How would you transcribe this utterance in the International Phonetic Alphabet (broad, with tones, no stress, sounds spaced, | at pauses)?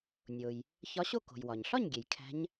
nʲ o˩ j | ç ɒ˧˥ ɕ o˥˨ k o̤˩ j w ɒ˩ ɲ ɬ ɒ˥˨ ɲ ɡʲ e˩ j kʰ æ̤˧˥ ɲ